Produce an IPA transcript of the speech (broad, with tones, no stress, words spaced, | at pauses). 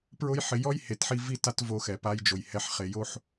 pɹʊ˧jħɪ˨ jɔ˦jhe˨tħi˧ vi˧ ta˧t vo˧xɛ˨ pa˧jd͡ʒo˨j hɛ˨ħχe˨ jo˦ħ